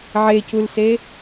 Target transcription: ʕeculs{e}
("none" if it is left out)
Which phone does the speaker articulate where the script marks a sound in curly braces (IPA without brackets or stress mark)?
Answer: e